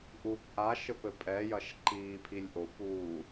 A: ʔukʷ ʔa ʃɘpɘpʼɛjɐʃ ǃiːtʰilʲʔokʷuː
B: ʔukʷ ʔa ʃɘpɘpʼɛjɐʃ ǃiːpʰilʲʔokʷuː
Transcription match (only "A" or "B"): B